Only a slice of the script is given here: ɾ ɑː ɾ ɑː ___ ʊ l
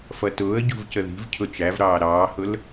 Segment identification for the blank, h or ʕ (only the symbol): h